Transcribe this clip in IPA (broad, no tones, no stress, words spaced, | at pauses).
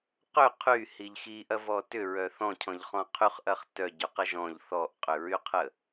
qʏ qʰyhiʎ xiʔɐvɔ tʏɹœ θɔ̃cʰɔ̃ʎχɔ̃ qʰyχʔɐχ tœɟyqə ʒɔ̃ʎ θɔʔqʼʏɹyqʰə